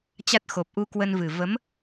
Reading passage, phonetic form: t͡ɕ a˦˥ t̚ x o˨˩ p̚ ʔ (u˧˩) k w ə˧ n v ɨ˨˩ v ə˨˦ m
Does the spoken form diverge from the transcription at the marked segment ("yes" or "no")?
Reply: yes